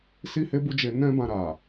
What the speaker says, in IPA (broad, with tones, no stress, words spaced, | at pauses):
si˦he˦ bu˦d͡ʒe˧ nɛ̃˦bã˧ ɾa˨